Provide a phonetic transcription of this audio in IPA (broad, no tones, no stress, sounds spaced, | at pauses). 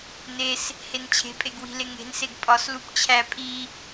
n e s | h e n t͡ɕʰ e̤ pʼ e ɡ w i̤ l e ŋ e̤ n s e ɡ pʼ ɒ s l u p t͡ɕʰ æ pʼ i